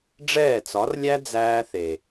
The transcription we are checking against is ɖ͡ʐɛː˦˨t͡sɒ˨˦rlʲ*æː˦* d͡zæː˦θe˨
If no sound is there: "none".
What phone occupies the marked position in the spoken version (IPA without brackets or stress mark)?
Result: æ˦